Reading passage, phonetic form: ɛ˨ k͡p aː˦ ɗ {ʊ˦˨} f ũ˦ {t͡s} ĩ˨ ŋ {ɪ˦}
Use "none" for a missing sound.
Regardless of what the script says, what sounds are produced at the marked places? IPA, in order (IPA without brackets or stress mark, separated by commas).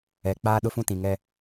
ʊ˦, t, ɛ˦